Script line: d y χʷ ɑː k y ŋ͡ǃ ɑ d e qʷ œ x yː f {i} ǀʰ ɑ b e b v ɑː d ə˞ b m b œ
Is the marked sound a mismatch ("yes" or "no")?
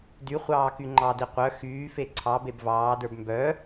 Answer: yes